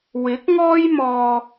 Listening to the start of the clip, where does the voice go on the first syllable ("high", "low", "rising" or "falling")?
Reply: rising